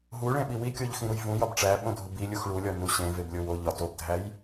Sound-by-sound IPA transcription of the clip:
ɦ u ɭ ẽ ɓ i w i kʲ o ʎ x ĩ ɾ u j v ũ j ɒ b ʈ͡ʂ æ ɓ õ dʱ u b i lʲ u x ɭ u lʲ ɒ n u ɕ ẽ v e b lʲ o w o ʎ ɒ t o b dʱ æ j

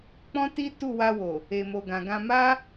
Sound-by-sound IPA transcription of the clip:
k͡p ɔ̃˦ t i˦ t u˦˨ w a˧ w o˨ | e˨ m o˨ ɡ ã˨ ɡ ã˧ m a˦

